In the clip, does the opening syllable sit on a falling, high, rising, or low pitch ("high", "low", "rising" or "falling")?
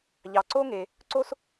low